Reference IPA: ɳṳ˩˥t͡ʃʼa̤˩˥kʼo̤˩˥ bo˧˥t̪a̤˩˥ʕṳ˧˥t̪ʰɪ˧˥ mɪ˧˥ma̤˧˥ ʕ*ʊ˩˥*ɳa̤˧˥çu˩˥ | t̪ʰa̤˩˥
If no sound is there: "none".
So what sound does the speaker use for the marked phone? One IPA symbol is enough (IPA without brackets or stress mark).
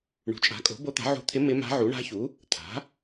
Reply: u˩˥